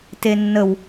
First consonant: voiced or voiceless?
voiceless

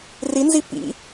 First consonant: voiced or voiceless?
voiced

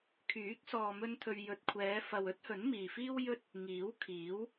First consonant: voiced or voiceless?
voiceless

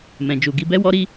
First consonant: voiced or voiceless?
voiced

